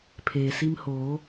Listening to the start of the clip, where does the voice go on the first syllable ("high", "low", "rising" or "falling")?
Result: low